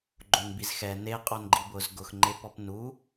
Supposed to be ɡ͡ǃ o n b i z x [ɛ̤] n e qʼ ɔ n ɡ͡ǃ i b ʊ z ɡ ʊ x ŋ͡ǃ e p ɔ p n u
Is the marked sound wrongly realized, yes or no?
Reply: yes